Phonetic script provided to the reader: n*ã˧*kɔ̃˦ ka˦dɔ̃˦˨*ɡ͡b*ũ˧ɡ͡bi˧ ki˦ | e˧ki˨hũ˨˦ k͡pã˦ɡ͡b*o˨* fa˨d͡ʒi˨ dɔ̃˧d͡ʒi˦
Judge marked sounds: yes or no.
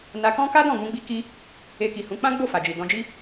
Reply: no, no, no

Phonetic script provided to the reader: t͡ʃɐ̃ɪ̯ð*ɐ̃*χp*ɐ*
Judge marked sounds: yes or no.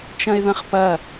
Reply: yes, yes

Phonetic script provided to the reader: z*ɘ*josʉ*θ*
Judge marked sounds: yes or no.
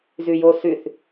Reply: no, yes

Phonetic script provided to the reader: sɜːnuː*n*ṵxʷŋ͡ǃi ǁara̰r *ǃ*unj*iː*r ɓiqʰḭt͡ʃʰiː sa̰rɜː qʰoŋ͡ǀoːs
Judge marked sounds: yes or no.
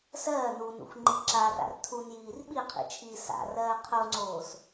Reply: yes, no, yes

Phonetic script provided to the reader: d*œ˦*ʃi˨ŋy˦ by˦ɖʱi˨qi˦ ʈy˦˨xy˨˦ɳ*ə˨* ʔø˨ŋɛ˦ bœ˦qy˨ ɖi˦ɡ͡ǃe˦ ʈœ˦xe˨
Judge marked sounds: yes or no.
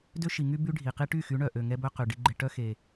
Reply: no, no

